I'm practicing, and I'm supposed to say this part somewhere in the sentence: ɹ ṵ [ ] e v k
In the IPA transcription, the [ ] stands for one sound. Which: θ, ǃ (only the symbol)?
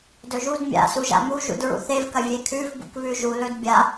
θ